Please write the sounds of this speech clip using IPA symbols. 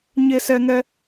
ɲ e˦ s ɛ˦ ŋ ɛ˦

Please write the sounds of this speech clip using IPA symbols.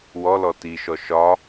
w ɔ l ɔ t i ʃ ɔ ʃ ɒ

